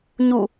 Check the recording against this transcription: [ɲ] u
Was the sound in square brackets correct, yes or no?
yes